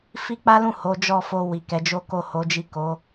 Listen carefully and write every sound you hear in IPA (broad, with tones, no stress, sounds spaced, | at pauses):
f i˦ k͡p a˦ l ũ˦˨ h o˨˦ d͡ʒ ɔ˦˨ f o˧ w i˨ k ɛ˨˦ d͡ʒ o˦ k o˦˨ h o˨˦ d͡ʒ i˦˨ k o˨˦